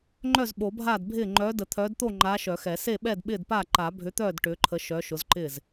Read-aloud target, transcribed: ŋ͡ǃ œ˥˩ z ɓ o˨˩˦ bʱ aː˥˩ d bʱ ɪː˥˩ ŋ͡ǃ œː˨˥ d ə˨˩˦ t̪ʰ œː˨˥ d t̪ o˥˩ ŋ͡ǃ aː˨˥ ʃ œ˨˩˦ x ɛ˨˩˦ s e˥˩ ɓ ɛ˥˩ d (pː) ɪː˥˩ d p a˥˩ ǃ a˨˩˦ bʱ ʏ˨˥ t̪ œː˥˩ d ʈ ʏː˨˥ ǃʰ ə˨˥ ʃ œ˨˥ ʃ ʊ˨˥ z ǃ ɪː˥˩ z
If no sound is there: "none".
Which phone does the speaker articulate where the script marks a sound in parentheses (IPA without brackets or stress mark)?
ɓ